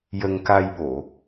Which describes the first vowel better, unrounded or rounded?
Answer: unrounded